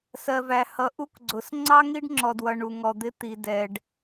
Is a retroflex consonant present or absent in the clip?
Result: present